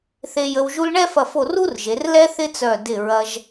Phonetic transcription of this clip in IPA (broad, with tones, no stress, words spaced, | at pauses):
θe˧jə˧w ʒu˧lɳɛ˥˧fɐ˧˩fo˧˩ ru˥rʒe˩˧rlɛ˥ θɪ˥t͡sœ˧˩ dɪ˧˩ɹɐ˧ʒ